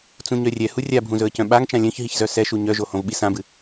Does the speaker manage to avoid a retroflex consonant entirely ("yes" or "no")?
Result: yes